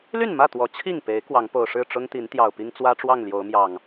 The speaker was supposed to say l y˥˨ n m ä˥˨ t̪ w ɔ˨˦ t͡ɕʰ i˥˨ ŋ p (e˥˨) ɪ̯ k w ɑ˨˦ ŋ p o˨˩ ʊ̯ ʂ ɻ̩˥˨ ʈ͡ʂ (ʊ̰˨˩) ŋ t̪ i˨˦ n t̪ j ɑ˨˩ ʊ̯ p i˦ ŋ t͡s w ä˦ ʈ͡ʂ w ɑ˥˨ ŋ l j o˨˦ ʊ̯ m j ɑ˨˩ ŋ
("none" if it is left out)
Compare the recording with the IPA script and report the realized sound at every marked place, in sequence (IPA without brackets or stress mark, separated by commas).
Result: e˨˦, ʊ˦